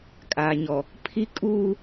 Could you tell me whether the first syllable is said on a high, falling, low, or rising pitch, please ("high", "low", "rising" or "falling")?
low